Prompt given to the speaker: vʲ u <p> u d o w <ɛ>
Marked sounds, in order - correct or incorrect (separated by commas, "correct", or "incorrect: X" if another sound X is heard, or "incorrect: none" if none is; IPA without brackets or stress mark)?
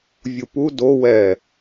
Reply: correct, correct